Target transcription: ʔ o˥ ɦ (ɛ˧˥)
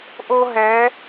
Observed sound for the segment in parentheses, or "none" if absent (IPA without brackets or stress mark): ɛ˧˥